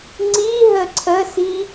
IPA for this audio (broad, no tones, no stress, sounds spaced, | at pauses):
ŋ͡ǀ i ɦ ə ǀʰ ə s i